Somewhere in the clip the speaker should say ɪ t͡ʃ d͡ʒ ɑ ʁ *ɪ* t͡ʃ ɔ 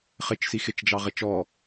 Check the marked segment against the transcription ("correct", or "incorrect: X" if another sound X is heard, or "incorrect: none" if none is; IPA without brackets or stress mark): correct